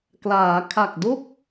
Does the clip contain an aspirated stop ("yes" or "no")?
yes